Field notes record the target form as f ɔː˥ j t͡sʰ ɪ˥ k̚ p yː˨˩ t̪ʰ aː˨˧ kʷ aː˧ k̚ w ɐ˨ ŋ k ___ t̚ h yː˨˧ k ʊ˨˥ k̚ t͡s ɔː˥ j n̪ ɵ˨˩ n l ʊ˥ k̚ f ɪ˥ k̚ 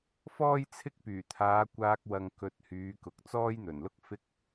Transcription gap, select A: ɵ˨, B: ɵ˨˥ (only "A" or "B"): A